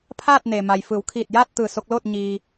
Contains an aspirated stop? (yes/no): yes